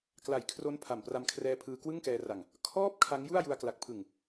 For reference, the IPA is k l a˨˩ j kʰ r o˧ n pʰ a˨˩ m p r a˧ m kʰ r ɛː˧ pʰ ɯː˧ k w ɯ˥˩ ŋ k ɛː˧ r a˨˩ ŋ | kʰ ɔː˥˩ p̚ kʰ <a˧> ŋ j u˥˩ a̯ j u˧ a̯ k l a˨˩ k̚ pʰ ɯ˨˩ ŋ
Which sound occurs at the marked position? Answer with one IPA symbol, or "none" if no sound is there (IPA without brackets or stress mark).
a˦˥